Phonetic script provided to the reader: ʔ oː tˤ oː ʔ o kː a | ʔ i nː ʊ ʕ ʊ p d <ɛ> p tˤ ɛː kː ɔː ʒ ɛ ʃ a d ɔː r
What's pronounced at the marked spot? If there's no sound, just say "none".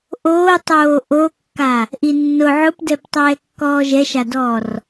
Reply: ɛ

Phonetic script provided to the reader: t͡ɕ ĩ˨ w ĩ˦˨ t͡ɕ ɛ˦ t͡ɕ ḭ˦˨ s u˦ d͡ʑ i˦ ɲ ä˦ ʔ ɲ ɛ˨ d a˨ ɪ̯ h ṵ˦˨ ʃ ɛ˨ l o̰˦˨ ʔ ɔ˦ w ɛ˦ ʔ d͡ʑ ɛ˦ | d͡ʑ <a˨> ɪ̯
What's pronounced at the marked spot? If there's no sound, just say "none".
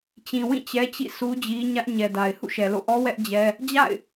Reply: a̰˦˨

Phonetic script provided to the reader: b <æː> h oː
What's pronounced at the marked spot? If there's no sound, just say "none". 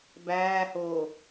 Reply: æː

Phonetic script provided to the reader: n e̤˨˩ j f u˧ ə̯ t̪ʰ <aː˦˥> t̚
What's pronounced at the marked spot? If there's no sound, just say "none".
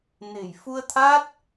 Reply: aː˦˥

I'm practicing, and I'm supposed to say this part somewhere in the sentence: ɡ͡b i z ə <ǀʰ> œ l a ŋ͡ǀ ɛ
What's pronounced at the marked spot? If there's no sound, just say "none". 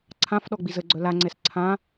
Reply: ɡ͡ǀ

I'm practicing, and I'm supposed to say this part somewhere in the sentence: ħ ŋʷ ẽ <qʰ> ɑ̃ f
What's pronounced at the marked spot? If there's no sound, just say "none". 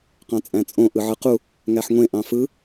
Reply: ʔ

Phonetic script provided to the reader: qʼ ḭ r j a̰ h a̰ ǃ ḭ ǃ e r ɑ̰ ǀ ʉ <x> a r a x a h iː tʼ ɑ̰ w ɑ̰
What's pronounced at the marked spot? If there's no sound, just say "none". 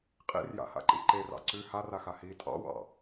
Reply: h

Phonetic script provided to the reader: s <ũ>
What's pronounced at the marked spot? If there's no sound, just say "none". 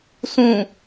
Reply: ũ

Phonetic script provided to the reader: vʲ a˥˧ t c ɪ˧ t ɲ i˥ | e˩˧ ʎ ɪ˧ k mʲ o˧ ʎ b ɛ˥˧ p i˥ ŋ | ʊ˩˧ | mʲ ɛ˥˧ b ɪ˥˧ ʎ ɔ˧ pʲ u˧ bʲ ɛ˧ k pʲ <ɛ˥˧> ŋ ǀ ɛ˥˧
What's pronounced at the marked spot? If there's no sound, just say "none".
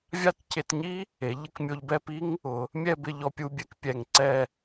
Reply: ɛ˧˩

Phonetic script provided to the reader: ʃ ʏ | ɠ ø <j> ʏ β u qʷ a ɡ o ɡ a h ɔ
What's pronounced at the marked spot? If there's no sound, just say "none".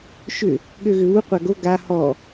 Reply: ɣ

